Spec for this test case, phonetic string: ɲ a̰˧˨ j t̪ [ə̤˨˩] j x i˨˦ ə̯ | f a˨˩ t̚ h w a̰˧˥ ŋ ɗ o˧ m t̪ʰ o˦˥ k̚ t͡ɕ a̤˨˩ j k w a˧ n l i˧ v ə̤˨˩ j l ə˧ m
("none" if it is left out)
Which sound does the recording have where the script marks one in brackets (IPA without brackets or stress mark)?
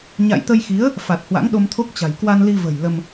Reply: ə˧